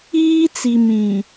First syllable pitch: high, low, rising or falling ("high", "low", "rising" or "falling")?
high